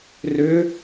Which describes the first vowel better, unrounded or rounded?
rounded